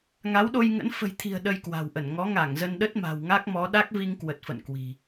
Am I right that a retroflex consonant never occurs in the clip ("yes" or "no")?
yes